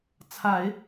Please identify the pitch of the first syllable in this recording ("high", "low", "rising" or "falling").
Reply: low